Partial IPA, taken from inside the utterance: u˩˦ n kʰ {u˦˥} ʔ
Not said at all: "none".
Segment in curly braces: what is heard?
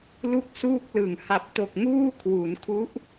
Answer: u˦˥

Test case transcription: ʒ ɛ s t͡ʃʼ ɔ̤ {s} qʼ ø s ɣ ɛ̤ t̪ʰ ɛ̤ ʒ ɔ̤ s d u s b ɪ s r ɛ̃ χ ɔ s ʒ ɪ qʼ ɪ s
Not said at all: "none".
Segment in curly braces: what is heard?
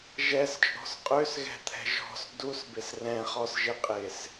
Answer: s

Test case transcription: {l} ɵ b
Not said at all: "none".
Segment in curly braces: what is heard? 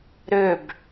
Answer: ɾ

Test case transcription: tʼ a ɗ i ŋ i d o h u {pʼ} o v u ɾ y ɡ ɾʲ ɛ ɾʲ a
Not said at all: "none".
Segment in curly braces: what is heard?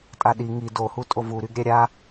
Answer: tʼ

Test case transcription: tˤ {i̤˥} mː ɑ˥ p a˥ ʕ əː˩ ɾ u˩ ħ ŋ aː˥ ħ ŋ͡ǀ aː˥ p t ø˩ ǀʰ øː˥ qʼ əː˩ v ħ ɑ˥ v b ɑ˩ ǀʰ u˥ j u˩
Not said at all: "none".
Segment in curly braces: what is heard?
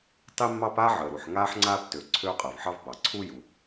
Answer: i˥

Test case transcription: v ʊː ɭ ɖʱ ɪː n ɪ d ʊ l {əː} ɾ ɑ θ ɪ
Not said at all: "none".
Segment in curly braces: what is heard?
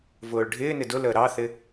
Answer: əː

